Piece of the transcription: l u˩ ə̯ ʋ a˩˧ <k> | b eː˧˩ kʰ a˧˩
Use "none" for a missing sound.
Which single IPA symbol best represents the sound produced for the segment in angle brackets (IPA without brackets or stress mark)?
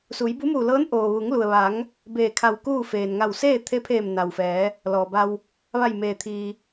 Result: ŋ